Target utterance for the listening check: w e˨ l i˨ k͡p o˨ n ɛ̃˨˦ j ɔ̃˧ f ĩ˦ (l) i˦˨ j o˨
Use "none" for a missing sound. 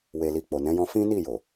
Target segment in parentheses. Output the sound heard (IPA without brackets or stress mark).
n